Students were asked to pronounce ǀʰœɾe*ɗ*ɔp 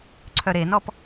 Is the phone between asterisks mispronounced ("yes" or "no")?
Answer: yes